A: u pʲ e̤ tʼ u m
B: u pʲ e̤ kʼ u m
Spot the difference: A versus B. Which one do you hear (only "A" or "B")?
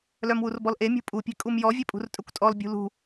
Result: B